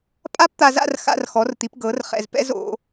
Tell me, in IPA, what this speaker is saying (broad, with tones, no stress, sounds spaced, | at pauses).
pʼ a˥ p t̪ a˧ z a̰˥˧ r x a̰˧ r x ɔ˩˧ r t̪ i˩˧ p ɡ ɤ˩˧ r χ ɛ̰˧˩ z p ɛ̰˧ z o̰˩˧